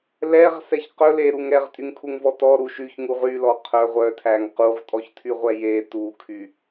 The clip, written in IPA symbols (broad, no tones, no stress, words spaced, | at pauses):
lɛʁsɛç qɵ leɾuŋ ɾɛʁtʼyŋkʰuŋvɔ tɔ ɾuʃ yçŋuʁ ylɔ qʰœ ʁʷœtʰæŋ quʁtʼɔçtʰyʁʷɛ je tukʰy